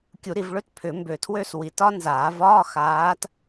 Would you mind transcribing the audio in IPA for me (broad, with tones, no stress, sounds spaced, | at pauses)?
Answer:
kʲ u˨˩˦ ɾ i˨ v ɭ ø˥ t pʰ ʏ˨˩˦ m b ø˨ tʰ w ø˥˧ s w i˨˩˦ t ɒ˥ n z aː˨˩˦ v ɒː˧˥˧ x aː˨˦ t